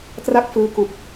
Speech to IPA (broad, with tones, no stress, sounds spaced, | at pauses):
t r a˥˩ k̚ f ɯː˧ k u˨˩ k̚